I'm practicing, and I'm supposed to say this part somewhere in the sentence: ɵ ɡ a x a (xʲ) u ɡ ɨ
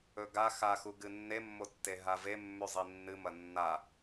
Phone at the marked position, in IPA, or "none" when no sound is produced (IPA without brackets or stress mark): x